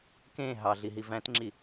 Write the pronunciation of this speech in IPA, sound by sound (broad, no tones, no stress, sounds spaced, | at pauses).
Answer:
k ẽ ɦ ɑ ɮ i ɦ i v æ̃ t ŋ͡ǁ i